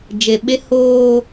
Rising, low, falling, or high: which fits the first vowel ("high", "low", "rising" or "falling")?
low